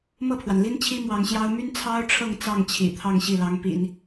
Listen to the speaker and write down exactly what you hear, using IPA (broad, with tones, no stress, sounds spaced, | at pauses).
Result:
m ɤ˥˩ pʰ w a˩ n l i˥ n t͡ɕʰ i˥ m w ɑ˧˥ ŋ ɕ j ɑ˥ ʊ̯ m y˥ n t͡sʰ ɑ˥ ʊ̯ ʈ͡ʂʰ ɤ˥˧ ŋ t͡s ɑ˥˩ ŋ t͡ɕʰ ḭ˨˩ t̪ʰ ɑ˥˧ ŋ ɕ i˥˩ l ɑ˧˥ ŋ p ḭ˨˩˦ n